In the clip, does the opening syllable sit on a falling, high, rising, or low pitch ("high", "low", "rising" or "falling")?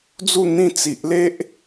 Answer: falling